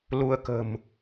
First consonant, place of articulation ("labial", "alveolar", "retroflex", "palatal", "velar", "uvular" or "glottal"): alveolar